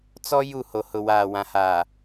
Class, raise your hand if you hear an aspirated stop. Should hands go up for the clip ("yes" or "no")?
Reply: no